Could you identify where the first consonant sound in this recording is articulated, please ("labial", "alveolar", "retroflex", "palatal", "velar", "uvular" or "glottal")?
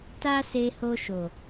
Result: alveolar